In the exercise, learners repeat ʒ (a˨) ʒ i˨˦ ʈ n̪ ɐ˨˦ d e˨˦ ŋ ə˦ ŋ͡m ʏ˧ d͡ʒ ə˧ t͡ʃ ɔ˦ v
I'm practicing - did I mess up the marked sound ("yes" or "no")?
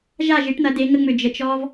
yes